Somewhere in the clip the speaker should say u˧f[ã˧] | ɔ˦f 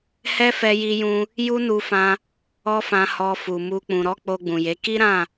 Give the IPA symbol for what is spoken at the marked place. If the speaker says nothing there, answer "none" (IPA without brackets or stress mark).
ã˧